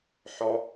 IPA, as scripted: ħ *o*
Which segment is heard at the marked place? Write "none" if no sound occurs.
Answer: ɔ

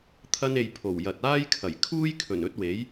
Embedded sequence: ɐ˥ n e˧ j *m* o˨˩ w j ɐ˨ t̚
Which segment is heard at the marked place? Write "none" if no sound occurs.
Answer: pʰ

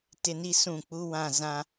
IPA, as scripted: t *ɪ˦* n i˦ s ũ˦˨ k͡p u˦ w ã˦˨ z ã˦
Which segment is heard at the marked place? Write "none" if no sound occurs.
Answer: ɪ˦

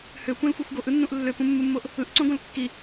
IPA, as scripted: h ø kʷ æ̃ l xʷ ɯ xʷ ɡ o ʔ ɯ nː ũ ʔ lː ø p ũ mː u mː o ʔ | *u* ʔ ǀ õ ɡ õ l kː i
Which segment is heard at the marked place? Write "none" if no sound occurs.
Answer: ɯ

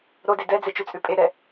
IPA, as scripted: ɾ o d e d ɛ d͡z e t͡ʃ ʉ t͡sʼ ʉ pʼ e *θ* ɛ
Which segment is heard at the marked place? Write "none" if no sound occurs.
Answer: ɾ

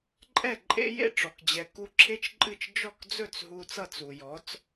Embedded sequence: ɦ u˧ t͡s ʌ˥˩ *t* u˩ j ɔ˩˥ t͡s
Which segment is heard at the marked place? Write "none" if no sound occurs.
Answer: t͡s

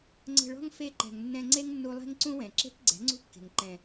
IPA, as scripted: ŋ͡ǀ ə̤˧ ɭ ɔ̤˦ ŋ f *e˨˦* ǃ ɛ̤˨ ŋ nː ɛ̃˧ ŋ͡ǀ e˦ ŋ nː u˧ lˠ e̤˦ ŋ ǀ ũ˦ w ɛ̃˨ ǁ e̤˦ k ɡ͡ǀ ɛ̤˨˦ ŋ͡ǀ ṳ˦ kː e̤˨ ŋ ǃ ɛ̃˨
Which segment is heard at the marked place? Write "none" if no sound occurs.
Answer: e˧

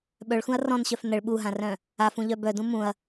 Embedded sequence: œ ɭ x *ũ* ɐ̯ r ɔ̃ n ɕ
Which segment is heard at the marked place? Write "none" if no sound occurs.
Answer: ũ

